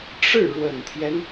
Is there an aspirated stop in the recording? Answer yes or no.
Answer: yes